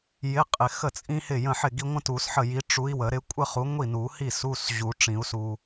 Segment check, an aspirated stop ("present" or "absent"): absent